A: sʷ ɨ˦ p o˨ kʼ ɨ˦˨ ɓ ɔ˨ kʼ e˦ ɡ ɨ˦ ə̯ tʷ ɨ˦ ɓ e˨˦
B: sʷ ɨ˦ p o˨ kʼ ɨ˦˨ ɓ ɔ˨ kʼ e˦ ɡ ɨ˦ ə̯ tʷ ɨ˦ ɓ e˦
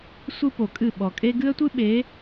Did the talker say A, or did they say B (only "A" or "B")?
A